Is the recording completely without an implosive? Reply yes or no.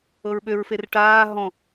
no